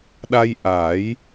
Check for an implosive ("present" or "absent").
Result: present